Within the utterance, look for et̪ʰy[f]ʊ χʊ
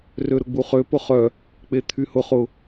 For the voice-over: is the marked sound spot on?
no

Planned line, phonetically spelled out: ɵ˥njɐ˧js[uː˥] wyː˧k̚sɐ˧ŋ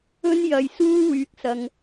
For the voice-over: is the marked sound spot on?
yes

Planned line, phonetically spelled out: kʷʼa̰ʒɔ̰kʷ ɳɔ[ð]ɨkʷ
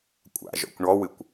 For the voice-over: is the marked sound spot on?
no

